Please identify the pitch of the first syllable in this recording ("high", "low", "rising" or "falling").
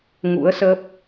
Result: rising